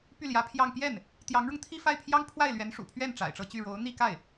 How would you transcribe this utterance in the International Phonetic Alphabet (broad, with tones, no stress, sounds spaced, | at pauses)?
p y˥˩ l j ä˧˥ pʰ j ɑ˥˧ ŋ p j ɛ˥˩ n | t̪ j ɑ˧˥ ŋ ɻ ʊ˧ ŋ t̪ʰ i˥˧ f a˥˩ ɪ̯ pʰ j ɑ˥ ŋ pʰ w a˥˩ ɪ̯ l ɥ ɛ˧˥ n ʂ ṵ˨˩ pʰ ɥ ɛ˥˩ n ʈ͡ʂ a̰˨˩ ɪ̯ ʈ͡ʂ ɤ˥˧ t͡ɕ y˥˩ ɻ o˧˥ ʊ̯ n̪ i˥˧ k a˥˩ ɪ̯